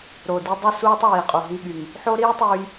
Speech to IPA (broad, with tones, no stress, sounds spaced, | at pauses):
ɾ o˨ d i˧ dˤ ɯ˦ s uː˦ tˤ w iː˨ qʼ u˨ ɦ i˧ ɠ y˨ ŋ | ħ o˦ ɾ iː˦ tˤ uː˧ j